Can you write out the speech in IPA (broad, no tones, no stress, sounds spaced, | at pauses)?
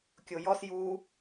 kʲ o j ɔ s j u